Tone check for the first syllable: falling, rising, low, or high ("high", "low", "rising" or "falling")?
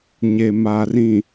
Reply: low